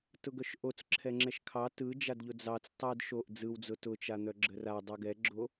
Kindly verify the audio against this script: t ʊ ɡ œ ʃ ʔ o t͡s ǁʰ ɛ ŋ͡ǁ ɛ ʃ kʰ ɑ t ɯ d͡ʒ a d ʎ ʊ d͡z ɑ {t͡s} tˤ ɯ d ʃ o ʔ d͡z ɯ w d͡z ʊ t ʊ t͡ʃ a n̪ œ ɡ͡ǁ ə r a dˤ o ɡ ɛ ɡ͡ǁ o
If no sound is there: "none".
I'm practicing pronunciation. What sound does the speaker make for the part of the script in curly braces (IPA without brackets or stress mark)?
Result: t͡s